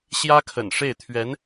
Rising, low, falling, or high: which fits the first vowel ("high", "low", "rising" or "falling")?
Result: high